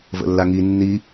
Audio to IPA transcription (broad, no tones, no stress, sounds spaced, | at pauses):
v ə̰ lː a ŋ i nː i